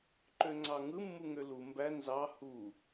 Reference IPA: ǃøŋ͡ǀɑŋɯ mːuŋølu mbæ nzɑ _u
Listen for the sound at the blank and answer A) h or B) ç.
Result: A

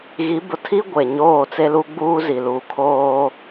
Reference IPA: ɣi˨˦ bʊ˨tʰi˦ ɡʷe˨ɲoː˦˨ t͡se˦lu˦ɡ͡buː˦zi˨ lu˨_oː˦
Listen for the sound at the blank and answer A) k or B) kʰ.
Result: B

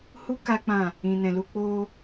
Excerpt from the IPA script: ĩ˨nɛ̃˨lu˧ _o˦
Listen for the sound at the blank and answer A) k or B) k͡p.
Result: B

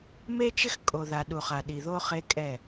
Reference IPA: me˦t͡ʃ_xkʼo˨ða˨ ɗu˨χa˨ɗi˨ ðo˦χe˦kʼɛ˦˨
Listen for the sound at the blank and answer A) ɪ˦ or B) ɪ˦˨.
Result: A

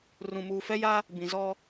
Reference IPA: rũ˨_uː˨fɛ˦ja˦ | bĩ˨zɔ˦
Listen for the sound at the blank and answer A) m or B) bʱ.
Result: A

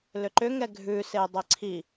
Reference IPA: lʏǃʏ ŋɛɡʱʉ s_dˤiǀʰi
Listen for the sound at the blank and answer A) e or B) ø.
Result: A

